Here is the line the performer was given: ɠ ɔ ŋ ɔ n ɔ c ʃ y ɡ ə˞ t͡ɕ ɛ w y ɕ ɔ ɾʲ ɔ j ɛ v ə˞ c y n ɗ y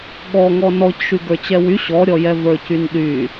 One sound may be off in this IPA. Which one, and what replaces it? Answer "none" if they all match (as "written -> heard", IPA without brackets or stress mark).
none